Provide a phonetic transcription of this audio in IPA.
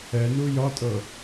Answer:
ɛ n u j ɒ tʼ ɤ

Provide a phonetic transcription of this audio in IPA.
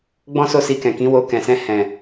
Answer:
ɡ͡b ɔ̃˦ s o˦˨ s i˧ k ɛ̃˨ k ĩ˨˦ w o˧ k ɛ̃˨ s ɛ̃˧ h ɛ̃˨

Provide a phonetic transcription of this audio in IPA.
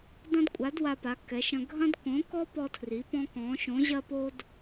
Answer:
d ɐ̃˥ d kʷʼ a˧˥ d w a˥ p a˧˥ kː ɛ˧˥ ʃ ɐ̃˥ ɡʱ ɐ̃˥ d k õ˧˥ k ɔ˥ p ɔ˥ tʰ r i˧˥ p ɔ̃˥ k ɔ̃˧˥ ʃ õ˧˥ ʑ ɐ˥ p o˥ d

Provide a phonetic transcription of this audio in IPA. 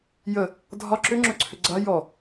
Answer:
j ə | dʱ ɒ ǁ ʏ ŋ͡ǁ ɵ ǀʰ ʏ ɡ͡ǀ a j ɔ

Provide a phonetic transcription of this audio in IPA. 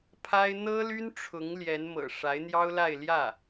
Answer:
pʰ a˥ ɪ̯ n̪ ɤ˥ l y˥ n ʈ͡ʂʰ ʊ˧˥ ŋ l j ɛ˧˥ n m ɤ̰˨˩ ʂ a˧˥ ɪ̯ n̪ j ɑ˥ ʊ̯ l a˥˧ ɪ̯ l j ä˥˩

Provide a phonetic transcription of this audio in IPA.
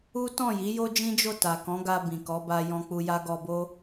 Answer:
u˦ t ɔ̃˦˨ j i˨˦ j o˦ d͡ʒ ĩ˦ d͡ʒ o˦˨ t a˨ k ɔ̃˨˦ ɡ a˧ b ĩ˨ k ɔ˨˦ b a˧ j ɔ̃˧ k͡p u˧ j a˦ ɡ ɔ˧ b o˦

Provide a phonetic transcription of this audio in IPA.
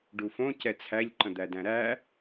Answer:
ɖ u f õ c ɛ t͡sʰ æ ʎ ǃ ə̃ d̪ æ d æ̃ ɾ æ

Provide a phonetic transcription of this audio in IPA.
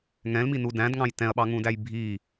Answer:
ŋ ɛ̃ l m i n u d æ̃ d ŋ ɑ̃ j t ɛ̃ ɐ̯ ɓ ɑ ŋ ũ d æ j bʱ i

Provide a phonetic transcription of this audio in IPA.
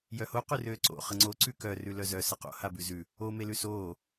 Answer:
j œ h o q ʉ r øː ǀ o̰ χ ə ŋ͡ǀ o ǀ ʉ k œ r ʉ l œ z œ s ə q o̰ h a b ʉ z ʉ | o m e l ʉ s oː

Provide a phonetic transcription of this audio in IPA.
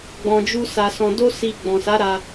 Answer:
ɡ͡b ɔ̃˧ d͡ʒ u˦ s a˧ s ɔ̃˧ d o˦ s i˧ ɡ͡b ɔ̃˨ s a˨˦ ɾ a˧

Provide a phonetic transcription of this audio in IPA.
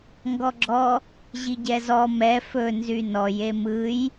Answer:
ŋ ɡ ɔ ɡ͡ǁ ɔ | ʑ i ɟ ɛ z ɔ m ɛ f ɵ n z y n ɔ j e m ɯ j

